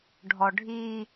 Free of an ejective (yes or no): yes